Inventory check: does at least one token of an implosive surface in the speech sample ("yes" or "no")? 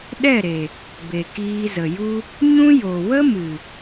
yes